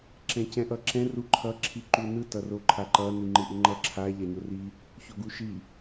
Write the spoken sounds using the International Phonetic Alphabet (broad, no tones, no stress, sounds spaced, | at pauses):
ǁ ɛ̃ c ɛ̃ ʔ ʌ ǁ ɛ̃ r u ǃʰ ʌ ǁʰ i ǃ u n ɯ t ʌ r o ǃʰ a ǃ ʌ n i ŋ͡ǃ ɯ ʔ ɯ ŋ͡ǃ ʌ ǁʰ a ʎ a ɲ o r i | ç o ɡ u ʃ i